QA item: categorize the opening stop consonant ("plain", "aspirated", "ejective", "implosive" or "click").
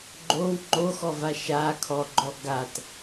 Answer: click